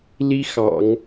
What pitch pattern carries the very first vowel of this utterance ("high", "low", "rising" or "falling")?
high